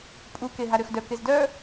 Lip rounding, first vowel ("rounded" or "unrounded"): rounded